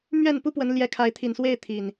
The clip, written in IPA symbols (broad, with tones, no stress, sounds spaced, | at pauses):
m ɥ ɛ˥˨ n p u˦ p w ə˨˦ n l j ɛ˨˦ kʰ a˨˦ ɪ̯ t̪ʰ i˨˩ n s w e˥˨ ɪ̯ t̪ʰ i˨˩ n